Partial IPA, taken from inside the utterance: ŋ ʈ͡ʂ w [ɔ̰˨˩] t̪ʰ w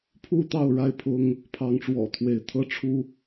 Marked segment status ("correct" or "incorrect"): correct